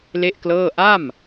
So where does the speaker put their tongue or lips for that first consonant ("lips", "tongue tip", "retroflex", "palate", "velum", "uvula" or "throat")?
tongue tip